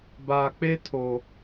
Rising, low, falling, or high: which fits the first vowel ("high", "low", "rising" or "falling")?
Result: low